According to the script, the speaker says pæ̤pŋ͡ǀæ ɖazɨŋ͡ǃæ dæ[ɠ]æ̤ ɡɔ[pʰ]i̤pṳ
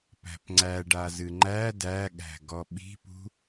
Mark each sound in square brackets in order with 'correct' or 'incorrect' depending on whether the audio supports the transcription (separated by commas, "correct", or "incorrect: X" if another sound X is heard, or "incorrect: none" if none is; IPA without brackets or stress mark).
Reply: correct, incorrect: ɓ